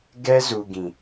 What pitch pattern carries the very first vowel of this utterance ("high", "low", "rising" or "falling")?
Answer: high